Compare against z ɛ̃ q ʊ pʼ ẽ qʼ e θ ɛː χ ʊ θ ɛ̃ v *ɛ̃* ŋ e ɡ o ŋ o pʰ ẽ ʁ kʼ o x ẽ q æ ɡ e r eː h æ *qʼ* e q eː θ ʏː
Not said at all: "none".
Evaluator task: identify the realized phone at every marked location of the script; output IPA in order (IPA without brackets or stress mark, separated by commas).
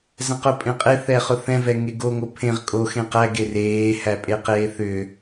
ɛ, pʼ